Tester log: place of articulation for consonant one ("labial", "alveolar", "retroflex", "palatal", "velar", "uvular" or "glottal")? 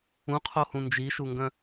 uvular